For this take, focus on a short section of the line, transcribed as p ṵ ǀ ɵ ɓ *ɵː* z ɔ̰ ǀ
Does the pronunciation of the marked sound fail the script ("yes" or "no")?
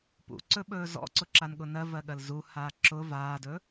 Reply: no